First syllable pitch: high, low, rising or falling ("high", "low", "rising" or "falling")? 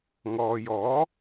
low